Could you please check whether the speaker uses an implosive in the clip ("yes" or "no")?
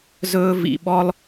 yes